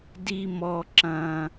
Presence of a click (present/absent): present